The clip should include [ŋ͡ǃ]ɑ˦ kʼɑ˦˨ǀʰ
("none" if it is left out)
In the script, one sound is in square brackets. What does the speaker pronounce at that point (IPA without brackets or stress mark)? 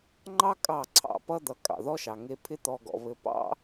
ŋ͡ǃ